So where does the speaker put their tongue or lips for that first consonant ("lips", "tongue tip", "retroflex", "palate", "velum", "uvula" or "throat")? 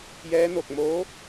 palate